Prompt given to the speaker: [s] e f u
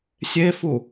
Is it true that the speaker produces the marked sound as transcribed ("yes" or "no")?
no